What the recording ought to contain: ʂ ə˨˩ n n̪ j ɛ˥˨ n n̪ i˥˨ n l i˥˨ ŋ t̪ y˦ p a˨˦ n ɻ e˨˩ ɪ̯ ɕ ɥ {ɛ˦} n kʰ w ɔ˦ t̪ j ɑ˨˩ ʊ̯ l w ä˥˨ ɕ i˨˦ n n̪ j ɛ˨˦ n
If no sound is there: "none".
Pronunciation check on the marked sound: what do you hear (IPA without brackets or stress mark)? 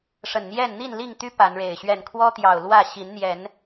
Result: ɛ˥˨